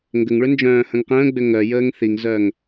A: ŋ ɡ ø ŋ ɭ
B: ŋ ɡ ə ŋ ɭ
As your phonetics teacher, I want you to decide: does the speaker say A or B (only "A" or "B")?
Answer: B